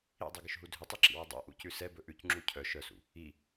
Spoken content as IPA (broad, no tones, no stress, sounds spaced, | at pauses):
ḭ dˤ ʉ ɡ ʏ ʃ ɦ u dʱ ʏ tˤ i ǁ ḭ w ɵ dˤ ɛ̰ ʔ ṵ c ʉ s ɛ b ɵ ʔ ʉ c ŋ͡ǁ u cʰ œ ʃ œ s ṵ | i